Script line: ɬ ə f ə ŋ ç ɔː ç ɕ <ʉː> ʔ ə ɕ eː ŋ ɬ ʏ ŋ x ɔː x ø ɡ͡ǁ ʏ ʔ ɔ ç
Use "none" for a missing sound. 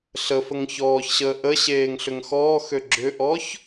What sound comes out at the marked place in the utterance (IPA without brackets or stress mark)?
əː